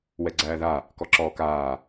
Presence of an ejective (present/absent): absent